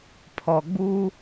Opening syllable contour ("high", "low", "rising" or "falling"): low